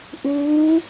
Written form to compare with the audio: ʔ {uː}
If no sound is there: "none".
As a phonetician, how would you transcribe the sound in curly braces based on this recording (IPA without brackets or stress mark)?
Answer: uː